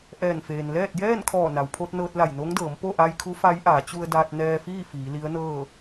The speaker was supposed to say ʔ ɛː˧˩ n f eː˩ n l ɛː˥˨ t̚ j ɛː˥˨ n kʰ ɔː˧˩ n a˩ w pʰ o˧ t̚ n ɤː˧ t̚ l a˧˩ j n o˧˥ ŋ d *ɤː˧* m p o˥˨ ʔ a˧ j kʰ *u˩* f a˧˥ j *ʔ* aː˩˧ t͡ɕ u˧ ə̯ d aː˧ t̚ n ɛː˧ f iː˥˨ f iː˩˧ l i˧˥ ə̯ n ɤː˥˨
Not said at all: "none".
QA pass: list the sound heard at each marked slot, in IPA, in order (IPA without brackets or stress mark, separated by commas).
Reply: ɤː˩˧, u˧˥, ʔ